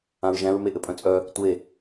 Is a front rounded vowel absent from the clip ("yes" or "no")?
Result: no